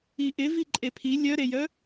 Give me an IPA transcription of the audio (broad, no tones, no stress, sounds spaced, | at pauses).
i ʔ ɪ v i ǃʼ e pʰ i lʲ œ ɾ e j œ